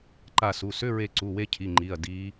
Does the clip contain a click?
yes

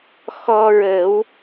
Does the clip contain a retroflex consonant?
no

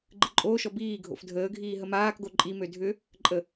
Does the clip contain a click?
yes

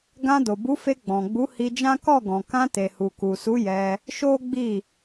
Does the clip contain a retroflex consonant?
no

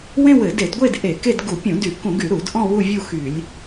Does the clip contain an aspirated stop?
no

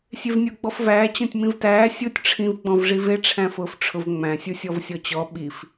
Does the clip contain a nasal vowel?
yes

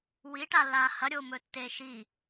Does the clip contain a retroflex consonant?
yes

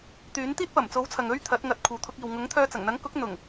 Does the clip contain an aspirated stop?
yes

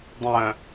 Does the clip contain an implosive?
no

